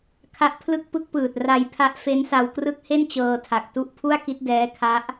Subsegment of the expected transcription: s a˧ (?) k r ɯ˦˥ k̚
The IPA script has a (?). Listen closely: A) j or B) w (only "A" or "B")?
B